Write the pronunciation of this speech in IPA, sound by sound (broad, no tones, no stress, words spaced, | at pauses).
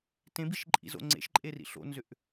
tẽbiʃǃʼḭzo̰ ŋ͡ǀḛʃǃʼerḭ ɬo̰nzʏʔ